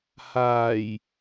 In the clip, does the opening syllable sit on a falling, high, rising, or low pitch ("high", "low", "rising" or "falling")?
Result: low